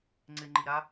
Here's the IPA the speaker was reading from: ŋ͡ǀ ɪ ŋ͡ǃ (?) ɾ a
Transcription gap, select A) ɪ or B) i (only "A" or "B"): B